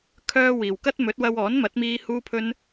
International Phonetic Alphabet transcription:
kʰœː˥wiː˨w kɐ˥t̚ mɵ˨˥t̚wɐ˧w ɔː˨˥nmɐ˨˥t̚miː˧ huː˧pʰɵ˧n

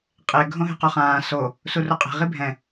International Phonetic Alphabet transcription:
qʼe ɡʱõɦe̤qoχãː so | suruqʼe̤ ʁibʱɛ̃

